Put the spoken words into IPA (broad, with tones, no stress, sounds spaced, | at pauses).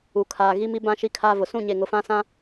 u˨ kʰ aː˨ ɣ i˦ m i˦ b ã˦ ʃ i˦ kʰ aː˦ v ʊ˨ s ũ˦˨ ɲ e˨ ŋ ʊ˨ f ã˦ s ã˦